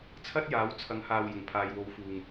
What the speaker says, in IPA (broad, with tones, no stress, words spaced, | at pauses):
t͡sʰɐ˥t̚jaː˨˥w t͡sʰɐ˨˥ŋhaː˨w jʊ˨˩ŋpʰaː˨jwo˨˥w fuː˨ŋ